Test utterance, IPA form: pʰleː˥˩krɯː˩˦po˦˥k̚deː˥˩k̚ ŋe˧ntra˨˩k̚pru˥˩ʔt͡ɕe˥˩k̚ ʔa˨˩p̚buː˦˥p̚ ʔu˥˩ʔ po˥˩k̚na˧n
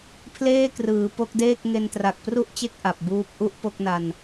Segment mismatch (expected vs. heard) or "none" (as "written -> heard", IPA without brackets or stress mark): none